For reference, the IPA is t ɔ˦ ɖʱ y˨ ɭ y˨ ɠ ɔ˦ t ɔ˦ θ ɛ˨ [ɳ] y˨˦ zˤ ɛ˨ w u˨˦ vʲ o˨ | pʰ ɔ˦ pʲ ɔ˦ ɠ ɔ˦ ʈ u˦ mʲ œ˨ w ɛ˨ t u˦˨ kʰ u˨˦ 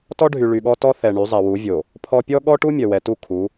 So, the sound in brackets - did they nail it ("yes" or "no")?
yes